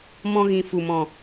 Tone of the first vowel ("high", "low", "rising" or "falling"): high